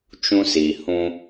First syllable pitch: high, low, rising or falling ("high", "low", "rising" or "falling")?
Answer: high